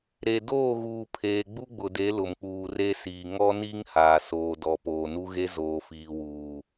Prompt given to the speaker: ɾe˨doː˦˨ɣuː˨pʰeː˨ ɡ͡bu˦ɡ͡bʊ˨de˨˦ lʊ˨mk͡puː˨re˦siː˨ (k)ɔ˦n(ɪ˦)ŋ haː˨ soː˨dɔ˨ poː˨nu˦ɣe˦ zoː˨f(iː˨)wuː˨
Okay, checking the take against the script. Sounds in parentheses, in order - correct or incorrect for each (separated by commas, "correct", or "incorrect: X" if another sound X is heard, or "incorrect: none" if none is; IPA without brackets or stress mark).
incorrect: ŋ, incorrect: i˦, correct